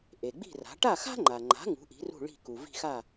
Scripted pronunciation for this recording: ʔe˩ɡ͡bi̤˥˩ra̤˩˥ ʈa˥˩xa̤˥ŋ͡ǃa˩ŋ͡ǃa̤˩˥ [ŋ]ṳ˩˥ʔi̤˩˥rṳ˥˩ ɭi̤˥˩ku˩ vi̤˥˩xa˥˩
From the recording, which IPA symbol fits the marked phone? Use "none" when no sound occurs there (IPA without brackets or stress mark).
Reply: ŋ